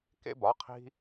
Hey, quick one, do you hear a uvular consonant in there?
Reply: yes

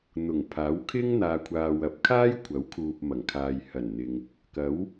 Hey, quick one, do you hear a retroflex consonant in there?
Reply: no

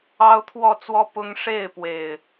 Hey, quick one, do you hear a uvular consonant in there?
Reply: no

